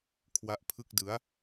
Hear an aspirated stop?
yes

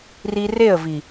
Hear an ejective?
no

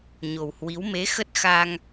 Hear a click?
no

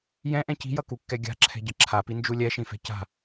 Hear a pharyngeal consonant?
no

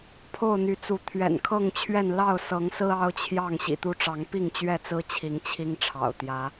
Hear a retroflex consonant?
yes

